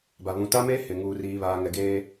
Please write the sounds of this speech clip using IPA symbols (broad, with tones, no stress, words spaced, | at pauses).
ba˨ βũ˨ta˦meː˦ hɪ˨ ŋuː˦riː˦βaː˦ŋɛ˦ ɡeː˦